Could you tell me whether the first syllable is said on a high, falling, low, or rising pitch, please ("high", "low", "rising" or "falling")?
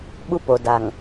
high